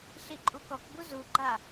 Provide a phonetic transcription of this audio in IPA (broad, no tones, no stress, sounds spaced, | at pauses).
ɬ i ǃʼ u k ɔ k b u z u ɡ͡ǃ a